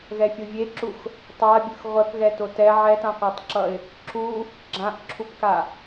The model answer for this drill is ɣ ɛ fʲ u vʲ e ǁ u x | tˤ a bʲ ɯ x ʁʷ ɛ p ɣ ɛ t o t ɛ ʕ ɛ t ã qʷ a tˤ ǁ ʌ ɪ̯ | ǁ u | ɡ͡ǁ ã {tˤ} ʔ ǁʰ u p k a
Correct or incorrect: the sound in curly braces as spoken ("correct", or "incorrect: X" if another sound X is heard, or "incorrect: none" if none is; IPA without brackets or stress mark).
incorrect: none